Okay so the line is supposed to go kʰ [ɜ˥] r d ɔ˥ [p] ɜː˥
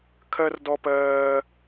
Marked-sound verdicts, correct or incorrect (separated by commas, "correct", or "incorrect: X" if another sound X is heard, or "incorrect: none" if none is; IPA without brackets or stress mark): correct, correct